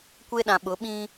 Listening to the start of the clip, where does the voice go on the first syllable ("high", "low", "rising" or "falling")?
high